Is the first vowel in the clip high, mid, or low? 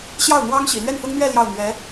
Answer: low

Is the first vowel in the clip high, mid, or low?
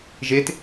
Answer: mid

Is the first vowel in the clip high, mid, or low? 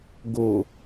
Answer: mid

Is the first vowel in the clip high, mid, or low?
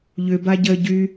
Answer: high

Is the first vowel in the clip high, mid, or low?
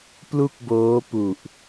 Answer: high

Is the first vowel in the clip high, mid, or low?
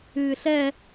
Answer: high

